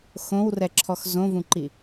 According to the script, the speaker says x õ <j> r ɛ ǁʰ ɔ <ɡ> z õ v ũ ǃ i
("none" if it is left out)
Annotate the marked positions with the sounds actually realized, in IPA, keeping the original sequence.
w, x

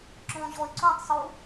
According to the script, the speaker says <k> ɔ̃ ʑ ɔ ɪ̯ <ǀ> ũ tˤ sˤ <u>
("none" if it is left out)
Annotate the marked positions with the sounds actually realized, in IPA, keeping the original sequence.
ǁ, ǀ, u

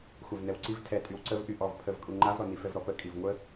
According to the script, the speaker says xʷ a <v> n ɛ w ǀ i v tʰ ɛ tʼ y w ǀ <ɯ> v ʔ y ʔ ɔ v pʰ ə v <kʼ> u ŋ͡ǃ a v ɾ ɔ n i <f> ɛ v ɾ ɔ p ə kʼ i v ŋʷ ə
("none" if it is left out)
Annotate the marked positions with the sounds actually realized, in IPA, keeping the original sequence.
v, ə, kʼ, f

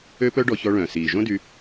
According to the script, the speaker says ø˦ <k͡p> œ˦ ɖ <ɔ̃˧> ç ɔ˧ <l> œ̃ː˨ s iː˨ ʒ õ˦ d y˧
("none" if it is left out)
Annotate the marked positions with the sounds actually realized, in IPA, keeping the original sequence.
p, ɔ˧, ɭ

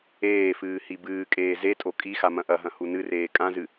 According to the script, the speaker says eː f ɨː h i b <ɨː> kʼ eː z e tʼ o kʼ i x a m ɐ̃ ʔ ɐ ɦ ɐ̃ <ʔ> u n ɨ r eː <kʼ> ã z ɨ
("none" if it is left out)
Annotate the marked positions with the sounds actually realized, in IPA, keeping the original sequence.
ɨː, h, kʼ

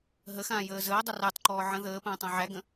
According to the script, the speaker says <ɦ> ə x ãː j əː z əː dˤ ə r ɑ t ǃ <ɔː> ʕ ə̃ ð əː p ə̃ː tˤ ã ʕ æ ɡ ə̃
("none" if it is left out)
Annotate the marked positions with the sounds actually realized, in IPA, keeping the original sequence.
ɦ, ɔː

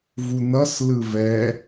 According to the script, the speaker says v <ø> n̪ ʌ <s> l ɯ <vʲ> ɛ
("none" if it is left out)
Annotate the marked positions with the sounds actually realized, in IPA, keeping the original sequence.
u, s, v

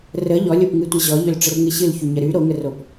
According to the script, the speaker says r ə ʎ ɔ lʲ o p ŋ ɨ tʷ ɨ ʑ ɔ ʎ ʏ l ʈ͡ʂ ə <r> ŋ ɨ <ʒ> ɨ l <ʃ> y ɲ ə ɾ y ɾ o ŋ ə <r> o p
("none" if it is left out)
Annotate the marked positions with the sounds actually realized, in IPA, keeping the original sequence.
r, ɕ, ç, r

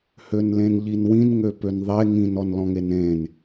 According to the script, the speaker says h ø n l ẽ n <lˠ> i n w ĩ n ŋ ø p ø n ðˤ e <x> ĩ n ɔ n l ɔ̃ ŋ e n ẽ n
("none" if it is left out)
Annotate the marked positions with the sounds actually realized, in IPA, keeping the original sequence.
ʎ, ŋ

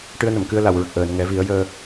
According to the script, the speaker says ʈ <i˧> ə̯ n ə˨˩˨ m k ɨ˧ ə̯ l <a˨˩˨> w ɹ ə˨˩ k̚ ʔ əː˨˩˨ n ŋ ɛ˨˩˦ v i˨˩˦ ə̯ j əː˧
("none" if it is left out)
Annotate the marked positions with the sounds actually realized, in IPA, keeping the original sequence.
ɨ˧, a˨˩˨

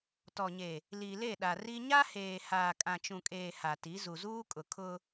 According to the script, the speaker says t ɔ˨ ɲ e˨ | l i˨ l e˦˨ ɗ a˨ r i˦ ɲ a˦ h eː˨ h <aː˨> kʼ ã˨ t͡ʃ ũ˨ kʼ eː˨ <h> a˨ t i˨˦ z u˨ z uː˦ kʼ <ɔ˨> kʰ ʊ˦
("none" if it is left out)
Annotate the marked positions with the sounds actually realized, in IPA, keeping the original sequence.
aː˨, h, ʊ˨

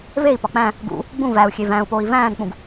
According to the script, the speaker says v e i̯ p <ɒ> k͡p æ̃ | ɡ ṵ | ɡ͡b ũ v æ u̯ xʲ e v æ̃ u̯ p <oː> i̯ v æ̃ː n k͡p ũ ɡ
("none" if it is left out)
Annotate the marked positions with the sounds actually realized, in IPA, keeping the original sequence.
ɒ, oː

